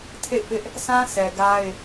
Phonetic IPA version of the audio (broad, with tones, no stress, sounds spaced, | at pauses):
tʰ ḛ˦˨ ɪ̯ p ɪ˦ ʔ | s ã˦ s ɛ˨ ɡ a˦ ɪ̯